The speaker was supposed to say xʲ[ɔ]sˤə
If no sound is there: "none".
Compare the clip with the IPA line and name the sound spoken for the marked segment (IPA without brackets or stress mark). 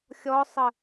ɔ